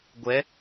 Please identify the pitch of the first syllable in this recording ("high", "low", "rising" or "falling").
rising